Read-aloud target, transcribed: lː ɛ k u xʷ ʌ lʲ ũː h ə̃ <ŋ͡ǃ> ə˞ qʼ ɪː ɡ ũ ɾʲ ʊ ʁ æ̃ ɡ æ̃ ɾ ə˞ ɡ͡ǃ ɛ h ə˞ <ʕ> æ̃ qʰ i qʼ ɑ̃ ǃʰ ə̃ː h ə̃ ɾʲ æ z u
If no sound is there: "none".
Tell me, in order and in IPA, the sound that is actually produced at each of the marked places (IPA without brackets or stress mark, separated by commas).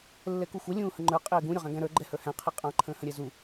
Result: ŋ͡ǃ, h